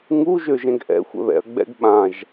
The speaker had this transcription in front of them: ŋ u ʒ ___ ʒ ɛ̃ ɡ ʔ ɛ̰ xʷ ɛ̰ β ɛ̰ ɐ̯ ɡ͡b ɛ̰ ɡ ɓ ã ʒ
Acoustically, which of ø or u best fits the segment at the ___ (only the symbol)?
ø